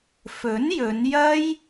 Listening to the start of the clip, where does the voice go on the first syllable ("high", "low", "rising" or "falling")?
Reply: rising